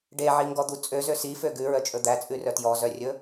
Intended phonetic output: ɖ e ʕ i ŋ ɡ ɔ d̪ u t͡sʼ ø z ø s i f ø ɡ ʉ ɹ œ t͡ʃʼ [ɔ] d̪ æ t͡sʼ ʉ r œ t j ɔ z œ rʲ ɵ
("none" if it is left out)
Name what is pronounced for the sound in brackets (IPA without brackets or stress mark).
ɵ